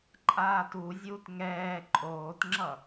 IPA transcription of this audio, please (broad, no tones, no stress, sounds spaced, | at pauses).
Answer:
ǃʼ aː t u zʲ uː t ŋ ɛː ǃʼ oː t ŋ͡ǁ ʌ